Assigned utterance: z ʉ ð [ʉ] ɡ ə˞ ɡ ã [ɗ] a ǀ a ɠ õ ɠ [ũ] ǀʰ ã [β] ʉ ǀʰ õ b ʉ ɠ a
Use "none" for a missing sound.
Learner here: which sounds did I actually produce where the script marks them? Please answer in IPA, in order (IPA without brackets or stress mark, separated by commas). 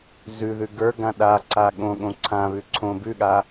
ʉ, ɗ, õ, β